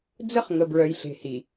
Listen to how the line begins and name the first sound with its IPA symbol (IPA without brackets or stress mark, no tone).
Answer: d͡z